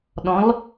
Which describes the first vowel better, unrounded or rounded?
rounded